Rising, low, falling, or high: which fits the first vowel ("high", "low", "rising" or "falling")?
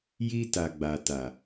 high